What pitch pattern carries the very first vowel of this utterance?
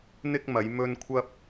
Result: high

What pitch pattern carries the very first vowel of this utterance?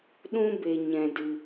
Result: high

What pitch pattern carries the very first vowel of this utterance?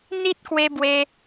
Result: high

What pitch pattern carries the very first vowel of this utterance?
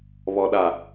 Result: low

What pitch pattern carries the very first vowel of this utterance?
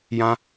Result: high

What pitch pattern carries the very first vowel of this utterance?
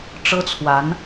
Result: high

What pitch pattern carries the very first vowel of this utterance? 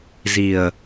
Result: low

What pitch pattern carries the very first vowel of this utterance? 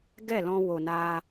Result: falling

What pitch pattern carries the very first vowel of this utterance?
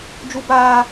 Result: high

